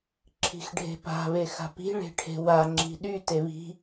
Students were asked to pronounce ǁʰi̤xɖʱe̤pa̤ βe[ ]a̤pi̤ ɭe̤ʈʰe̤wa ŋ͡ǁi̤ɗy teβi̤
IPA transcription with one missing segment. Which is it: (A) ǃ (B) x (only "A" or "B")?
B